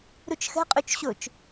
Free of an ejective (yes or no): no